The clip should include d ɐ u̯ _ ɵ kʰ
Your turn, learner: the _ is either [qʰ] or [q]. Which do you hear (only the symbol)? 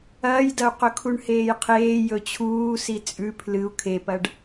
q